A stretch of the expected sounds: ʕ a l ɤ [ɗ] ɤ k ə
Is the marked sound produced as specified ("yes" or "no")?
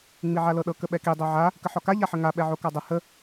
yes